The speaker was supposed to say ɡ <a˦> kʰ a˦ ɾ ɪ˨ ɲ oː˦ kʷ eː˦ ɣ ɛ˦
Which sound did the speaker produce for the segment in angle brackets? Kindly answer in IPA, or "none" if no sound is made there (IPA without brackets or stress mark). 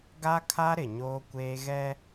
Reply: a˦